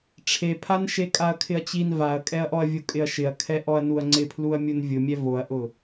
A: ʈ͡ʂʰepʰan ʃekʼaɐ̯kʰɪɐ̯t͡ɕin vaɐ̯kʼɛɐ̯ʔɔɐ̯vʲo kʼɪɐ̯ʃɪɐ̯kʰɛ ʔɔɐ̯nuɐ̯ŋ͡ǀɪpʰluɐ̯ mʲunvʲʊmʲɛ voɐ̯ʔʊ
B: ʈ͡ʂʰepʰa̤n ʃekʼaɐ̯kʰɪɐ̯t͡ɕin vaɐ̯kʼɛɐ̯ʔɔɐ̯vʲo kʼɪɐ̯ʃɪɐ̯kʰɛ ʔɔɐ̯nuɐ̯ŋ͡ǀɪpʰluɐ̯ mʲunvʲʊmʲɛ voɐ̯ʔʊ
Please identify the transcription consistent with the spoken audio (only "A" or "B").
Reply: A